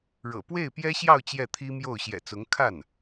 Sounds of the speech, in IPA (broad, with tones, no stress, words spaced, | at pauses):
ɻɤ̰˨˩ pwe˥˩ɪ̯pjɛ˥ɕjɑ˥˧ʊ̯ t͡ɕjɛ˥˩t̪ʰi˥mjo˥˩ʊ̯ ɕjɛ̰˨˩t͡sʊ˧˥ŋ kʰa˥˩n